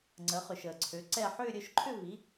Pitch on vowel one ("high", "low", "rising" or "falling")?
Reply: rising